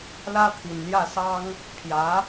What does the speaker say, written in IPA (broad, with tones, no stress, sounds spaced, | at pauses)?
l ä˥ t̪ʰ i˨˩ n l j ä˥˩ s ɑ˥ ŋ | pʰ j ä˧˥